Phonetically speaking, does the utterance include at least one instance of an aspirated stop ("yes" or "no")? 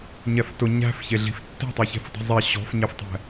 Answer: no